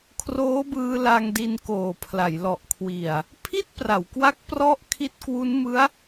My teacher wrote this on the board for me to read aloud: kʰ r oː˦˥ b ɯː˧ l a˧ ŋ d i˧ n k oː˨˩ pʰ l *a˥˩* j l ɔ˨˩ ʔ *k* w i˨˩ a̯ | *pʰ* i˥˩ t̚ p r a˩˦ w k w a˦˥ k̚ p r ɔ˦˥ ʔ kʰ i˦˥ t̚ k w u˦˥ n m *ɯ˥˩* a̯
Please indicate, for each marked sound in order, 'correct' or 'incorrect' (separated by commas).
incorrect, incorrect, correct, incorrect